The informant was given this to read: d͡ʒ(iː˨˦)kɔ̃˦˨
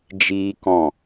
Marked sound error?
yes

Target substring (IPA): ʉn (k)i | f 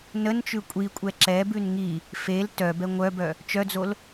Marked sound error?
yes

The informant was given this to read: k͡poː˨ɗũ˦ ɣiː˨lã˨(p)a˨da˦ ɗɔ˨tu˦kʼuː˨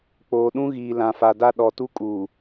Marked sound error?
yes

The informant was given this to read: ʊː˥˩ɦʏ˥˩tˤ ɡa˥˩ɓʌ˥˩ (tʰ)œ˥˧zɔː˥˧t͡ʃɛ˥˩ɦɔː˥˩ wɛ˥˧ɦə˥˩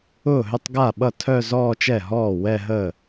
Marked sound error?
no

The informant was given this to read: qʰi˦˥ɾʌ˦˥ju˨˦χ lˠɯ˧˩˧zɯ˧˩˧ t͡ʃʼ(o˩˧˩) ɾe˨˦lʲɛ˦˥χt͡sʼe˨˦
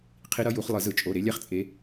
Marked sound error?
no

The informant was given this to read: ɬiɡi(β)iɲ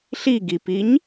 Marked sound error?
yes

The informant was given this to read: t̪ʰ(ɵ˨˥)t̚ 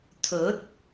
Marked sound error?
no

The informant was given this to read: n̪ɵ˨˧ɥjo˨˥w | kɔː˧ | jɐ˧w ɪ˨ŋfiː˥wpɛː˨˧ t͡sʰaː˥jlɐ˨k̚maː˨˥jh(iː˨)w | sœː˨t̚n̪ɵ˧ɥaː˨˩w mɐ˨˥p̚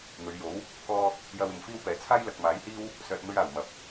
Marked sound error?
yes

